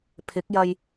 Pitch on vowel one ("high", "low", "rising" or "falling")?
rising